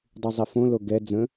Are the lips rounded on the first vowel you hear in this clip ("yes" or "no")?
yes